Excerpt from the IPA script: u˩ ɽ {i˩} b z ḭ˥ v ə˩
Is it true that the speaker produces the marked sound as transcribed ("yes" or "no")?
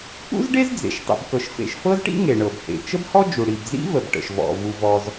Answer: yes